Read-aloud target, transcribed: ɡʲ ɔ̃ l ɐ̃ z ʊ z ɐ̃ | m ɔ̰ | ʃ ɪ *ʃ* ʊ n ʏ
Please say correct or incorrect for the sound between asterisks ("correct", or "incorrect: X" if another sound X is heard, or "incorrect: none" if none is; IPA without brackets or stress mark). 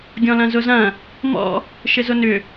incorrect: z